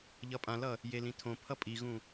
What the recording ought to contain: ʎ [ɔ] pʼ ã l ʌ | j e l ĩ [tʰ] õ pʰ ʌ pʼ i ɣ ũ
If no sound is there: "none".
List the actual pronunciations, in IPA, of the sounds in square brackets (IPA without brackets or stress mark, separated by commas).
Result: ʌ, tʰ